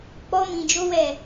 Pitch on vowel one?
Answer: high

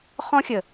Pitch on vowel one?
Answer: high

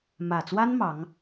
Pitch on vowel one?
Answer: low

